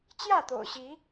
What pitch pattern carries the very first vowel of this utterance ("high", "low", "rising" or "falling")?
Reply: falling